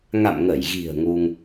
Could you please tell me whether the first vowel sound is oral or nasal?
oral